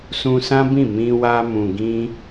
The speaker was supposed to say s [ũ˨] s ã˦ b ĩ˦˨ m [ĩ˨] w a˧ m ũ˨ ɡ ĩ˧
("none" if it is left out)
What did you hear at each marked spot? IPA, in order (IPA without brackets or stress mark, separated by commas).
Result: ũ˧, ĩ˧